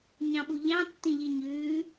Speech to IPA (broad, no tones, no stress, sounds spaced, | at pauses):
ɲ ɑ̃ ɓ u ʎ ɑ̃ tː ĩ ʎ i ɲ ʉː